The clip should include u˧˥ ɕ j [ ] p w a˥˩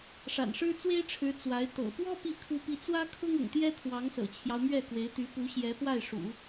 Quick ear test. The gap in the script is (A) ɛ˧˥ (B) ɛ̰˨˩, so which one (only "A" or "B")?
A